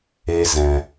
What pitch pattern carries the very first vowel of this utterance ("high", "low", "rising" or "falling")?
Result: high